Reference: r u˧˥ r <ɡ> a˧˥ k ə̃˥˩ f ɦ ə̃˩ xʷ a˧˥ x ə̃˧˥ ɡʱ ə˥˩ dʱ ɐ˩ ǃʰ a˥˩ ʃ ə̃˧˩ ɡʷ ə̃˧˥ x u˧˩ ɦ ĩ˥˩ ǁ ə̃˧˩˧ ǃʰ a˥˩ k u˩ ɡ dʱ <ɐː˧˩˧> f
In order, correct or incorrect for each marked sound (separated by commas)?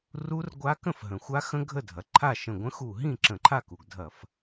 incorrect, incorrect